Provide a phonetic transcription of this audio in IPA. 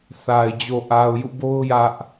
θa˨ɪ̯ d͡ʑo˨ʔa˨ʊ̯jṵ˦˨ bo˦ʊ̯ jä˦ʔ

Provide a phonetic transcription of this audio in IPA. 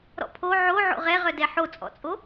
ɾɔ̰pʰo ʕo ʕo̰ʁɛʁœdɛ ħot͡sʼɔ̰t͡sʼo

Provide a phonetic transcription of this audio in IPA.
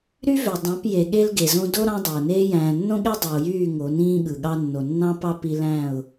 ɾy˦vø˨ dˤɑ̃˨˦p je˨ ɠe˦lɡe˨zõ˦ do˦ ɾɑ̃˦dˤæ˨ʊ̯neː˦ jæ̃ː˨nːõ˦ɠe˦ dˤy˨ʊ̯jyː˦˨ ŋo˨˦nĩː˦ɠɯ˨ɠɑ˦ nːo˨nːɑ̃˦pɑ˦ pi˦ læ̃˦˨ʊ̯

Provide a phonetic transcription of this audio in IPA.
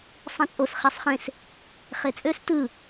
sˤĩt͡sʼos χesˤχẽs | χet͡sʼøs tɯ

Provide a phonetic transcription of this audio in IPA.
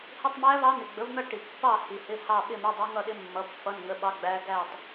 hɪ˧˥˧tˤmæ˦˥ vɑ˦˥n̪ɪ˨ɡ͡bə˨˥vn̪ʌ˥˧ ʈi˨pːɑ˥˧ hi˨hɪ˧˥˧ hɑ˥˧ ɓɪ˥˧mɪ˧˥˧dˤʌ˦˥ŋʌ˥˧ ɗɪ˦˥mːʌ˨˥ pːʌ˧˥˧nŋə˧˥˧ ɓɑ˦˥ɡ͡bæ˦˥ ɡæ˥˧tˤ

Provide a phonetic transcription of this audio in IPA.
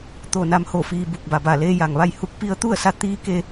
t̪o˧˩ na˧˥mho˧˩fiː˧ bu˧˩k̚ba˩ba˧˩ leː˧ja˩ŋʋa˥˨j hu˧˥k̚pi˧˥ə̯t̪u˥˨ə̯sa˧˥ t̪iː˧˥ ke˧

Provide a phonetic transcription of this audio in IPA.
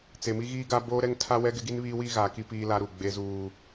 t͡se˨mi˦ɣiː˦ɡa˦ boː˦ɾɛ˦ŋ tʰa˦wɛ˦ɡɪ˦ ɡi˦nβiː˦wiː˦ ɣaː˨ki˦ piː˦la˦ɾu˨ ɡ͡be˦zuː˦

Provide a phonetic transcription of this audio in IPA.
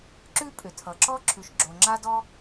ǁʉ˥pʼʏ˩tʰʌ˩ǁɔ˥ ǁʰʉ˩ʃɡ͡ǁo˩ ŋ͡ǁa˥dɔ˥

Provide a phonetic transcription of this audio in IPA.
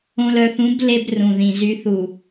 õ˨lœ˨θũ˨˦b le˦brũ˨ðĩ˨ zy˨θu˨

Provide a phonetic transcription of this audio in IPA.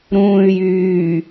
ɾũːy̯jyː

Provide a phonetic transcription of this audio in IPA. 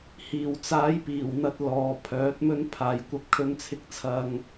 hiː˨˩w t͡saː˨˥jpiː˨˩wn̪ɐ˧t̚ lɔː˨ pʰœː˨˥t̚mɵ˥n pʰaː˧jkʷɐ˥p̚ kʰɵ˥nt͡sʰɪ˥k̚t͡sʰɐ˥ŋ

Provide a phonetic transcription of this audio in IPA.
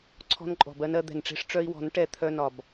ǀʰɔ̤˧nǃʼɔ̤˨bɜ˧n ɜ˧ d̪ɛ̤˨nʈ͡ʂe̤˧ʂ ʈ͡ʂœ˧i̯wɔ̤˨˦n ʈɛ˧ t̪ʰœ˧nɒ˨b

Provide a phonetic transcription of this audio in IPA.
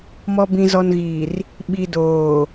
mɔ˨bĩ˨zɔ˨nɣiː˨r | ɓi˨doː˨

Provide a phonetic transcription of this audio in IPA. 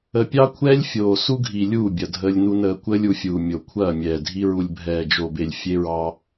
ə˨pʲɑ˦kʷʰɛː˦lʲ fʲoː˨su˦ɡʱi˨ lʲuː˦˨bʲɐ˨ dʱəː˦lʲnu˦nəː˦ kʷəː˦lʲu˨fʲuː˨ mʲo˨kʷʰɐː˦˨mʲɛː˨dʱi˦ ɹu˨lʲbʱɛː˨d͡ʒo˨be˨lʲ fʲe˦ɹɑ˦

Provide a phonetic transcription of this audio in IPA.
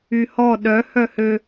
yhɔ ɗœ hœhø

